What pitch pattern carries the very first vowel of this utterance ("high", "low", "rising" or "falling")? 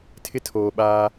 high